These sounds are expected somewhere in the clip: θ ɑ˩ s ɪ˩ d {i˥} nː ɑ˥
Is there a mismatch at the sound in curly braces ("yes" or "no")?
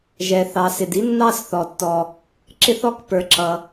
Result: no